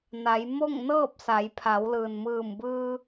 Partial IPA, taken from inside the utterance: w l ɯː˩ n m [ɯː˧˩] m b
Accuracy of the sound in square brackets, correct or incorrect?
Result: correct